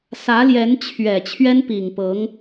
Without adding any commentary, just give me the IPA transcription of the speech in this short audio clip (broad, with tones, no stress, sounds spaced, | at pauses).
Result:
s ä˧˥ l j ɛ˧˥ n t͡ɕʰ ɥ ɛ˨˩ t͡ɕʰ ɥ ɛ˥ n p i˨˩ ŋ p ɤ˧˥ ŋ